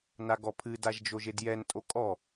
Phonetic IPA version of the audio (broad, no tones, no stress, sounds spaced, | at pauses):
n a ɡ ɔ pʰ ɨ d a ʒ d͡ʒ o ʒ e d j ɛ n tʼ o kʼ ɔ